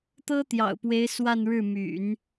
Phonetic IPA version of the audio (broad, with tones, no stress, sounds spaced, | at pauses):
t̪ ɤ˥ t̪ j ɑ̰˨˩ ʊ̯ p w e˧˥ ɪ̯ s w a˥˧ n ɻ ɻ̩˥˩ m y̰˨˩˦ n